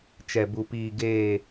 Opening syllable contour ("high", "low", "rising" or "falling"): low